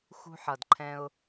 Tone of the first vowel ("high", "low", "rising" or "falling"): low